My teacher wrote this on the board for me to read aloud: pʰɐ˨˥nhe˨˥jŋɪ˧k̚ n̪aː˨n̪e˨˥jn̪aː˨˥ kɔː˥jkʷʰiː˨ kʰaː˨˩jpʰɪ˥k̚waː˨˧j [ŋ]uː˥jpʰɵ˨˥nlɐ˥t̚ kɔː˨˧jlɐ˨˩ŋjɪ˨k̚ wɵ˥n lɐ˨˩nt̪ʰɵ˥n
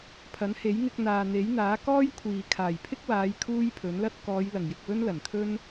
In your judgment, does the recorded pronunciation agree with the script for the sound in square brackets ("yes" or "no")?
no